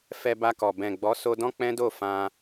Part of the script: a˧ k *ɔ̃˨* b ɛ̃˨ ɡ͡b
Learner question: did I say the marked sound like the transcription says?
no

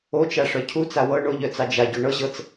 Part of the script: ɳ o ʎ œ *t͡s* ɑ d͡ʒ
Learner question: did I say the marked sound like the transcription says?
yes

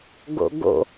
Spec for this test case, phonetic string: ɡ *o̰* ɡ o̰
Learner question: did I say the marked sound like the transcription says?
yes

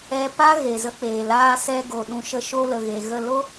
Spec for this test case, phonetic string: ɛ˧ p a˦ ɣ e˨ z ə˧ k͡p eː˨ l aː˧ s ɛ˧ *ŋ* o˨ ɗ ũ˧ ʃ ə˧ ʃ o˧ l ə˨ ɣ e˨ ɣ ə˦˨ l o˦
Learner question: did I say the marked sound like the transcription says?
no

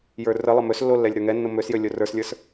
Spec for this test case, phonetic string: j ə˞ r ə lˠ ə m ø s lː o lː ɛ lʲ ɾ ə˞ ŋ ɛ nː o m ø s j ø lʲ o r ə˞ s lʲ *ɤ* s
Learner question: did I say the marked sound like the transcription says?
no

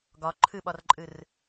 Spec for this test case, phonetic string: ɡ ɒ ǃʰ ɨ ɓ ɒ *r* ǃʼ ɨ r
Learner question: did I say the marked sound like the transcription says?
yes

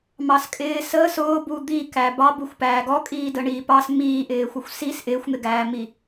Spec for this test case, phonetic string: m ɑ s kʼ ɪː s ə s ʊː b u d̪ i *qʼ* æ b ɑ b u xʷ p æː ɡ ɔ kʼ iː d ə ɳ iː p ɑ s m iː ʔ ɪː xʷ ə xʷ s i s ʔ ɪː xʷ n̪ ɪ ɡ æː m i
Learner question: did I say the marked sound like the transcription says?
no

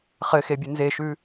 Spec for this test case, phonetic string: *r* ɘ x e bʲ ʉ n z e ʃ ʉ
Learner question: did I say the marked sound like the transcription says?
no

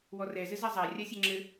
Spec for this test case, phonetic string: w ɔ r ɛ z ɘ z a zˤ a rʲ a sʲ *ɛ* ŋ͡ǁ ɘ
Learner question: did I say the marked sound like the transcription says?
yes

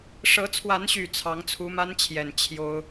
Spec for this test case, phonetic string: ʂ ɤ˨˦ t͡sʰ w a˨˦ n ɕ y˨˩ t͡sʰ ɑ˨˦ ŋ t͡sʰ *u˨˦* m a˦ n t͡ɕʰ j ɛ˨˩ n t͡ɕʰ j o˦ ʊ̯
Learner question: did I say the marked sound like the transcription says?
yes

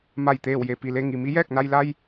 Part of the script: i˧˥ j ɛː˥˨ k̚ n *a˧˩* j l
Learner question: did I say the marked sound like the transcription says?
no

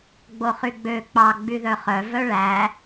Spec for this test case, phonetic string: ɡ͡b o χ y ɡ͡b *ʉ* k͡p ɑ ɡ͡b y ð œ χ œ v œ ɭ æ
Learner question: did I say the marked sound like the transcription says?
no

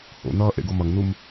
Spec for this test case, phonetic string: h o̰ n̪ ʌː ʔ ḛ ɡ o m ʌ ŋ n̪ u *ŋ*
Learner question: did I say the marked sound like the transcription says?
no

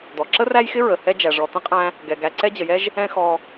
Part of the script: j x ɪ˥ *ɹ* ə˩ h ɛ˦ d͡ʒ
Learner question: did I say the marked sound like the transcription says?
yes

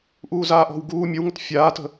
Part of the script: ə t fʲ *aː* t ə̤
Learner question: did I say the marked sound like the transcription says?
yes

